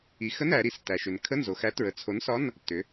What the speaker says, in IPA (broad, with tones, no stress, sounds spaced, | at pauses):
i˩˧ x ə˧˥˧ n æ˩˧ ɾ i˩˧ s t æ˩ ʃ ʏ˩ n kʰ ə˧˥˧ n z o˩ x æ˨˥ t ɹ ə˩˧ t͡sʰ o˨˥ n s ɒ˧˥˧ n | t ʏ˩˧